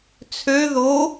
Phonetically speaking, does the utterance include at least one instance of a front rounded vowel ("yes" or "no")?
yes